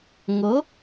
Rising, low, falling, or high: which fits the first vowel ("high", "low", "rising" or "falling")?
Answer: rising